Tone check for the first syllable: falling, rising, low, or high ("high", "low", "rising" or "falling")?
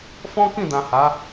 high